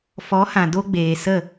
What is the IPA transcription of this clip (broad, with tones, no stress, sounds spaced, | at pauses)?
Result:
f ɔ˨˦ h ã˨ d o˦ ɡ͡b eː˨ s ə˦˨